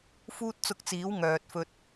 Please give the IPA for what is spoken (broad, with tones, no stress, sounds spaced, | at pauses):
f uː˥ t̚ t͡s ʊ˧ k̚ t͡s iː˨˥ w ŋ œː˨ t̚ f ɵ˧ t̚